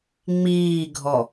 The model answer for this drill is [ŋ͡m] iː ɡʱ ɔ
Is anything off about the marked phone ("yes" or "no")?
no